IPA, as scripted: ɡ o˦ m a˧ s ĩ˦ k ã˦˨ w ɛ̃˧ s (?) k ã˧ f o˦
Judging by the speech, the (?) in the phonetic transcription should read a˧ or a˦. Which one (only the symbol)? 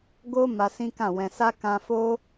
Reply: a˦